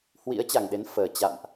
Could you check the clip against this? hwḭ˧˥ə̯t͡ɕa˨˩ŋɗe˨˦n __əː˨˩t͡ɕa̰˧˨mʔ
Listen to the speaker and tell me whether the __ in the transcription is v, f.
f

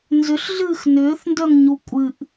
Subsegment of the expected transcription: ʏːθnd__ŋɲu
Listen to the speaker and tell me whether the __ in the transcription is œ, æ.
œ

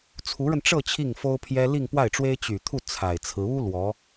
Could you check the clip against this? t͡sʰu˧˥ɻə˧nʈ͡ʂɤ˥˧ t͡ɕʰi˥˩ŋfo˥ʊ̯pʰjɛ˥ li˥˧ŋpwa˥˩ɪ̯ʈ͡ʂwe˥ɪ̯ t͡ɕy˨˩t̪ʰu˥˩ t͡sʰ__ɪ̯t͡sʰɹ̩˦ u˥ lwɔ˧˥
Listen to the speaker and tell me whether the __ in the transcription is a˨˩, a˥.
a˨˩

